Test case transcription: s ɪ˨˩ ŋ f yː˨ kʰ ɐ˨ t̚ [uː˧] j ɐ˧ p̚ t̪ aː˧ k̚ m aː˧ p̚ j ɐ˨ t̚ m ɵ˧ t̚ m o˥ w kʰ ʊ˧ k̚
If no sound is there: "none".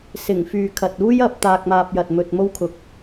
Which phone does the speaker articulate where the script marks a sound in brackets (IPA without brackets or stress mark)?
uː˥